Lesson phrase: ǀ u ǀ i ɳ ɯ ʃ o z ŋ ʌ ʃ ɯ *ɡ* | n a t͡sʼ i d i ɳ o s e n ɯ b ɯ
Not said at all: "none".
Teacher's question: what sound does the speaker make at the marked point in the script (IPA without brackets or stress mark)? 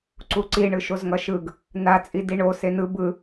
ɡ